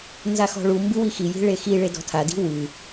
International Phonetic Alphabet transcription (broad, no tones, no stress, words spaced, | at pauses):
nzaxɔ̤ɭumbɨ wixiji̤ ɭexiɭe dɔ̤tʰadi̤ wɨ